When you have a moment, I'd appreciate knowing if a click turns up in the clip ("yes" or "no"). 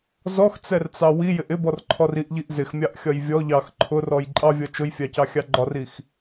yes